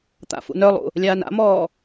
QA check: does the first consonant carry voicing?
no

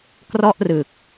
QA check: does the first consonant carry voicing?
no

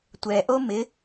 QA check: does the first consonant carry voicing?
no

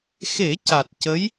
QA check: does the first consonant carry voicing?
no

